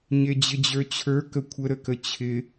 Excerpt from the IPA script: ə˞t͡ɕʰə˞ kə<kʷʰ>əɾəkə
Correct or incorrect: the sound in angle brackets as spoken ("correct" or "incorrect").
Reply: correct